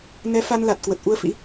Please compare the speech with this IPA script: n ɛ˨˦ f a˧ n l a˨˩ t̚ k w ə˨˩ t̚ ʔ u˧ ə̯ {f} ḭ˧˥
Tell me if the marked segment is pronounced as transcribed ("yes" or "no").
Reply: yes